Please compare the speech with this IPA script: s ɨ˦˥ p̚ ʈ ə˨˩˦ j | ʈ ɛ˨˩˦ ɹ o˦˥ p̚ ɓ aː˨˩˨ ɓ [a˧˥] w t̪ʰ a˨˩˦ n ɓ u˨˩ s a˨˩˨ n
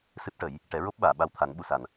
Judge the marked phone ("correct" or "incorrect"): incorrect